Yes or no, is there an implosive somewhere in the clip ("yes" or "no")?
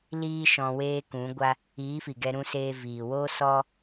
no